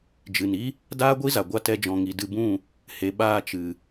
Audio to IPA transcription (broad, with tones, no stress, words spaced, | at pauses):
d͡ʒɨ˨ni˦ | daː˦ɡʷi˦za˨ɡʷa˧ tɛ˦d͡ʒɔ̃˧ŋi˧ dɨ˧bũ˦˨ | he˨˦ ɓaː˧t͡ʃɨ˨